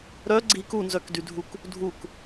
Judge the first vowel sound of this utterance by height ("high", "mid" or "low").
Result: mid